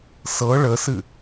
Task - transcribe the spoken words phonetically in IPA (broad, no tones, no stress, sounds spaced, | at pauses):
s ɤ ɭ ə s ɨ